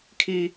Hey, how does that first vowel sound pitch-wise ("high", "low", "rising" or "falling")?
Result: high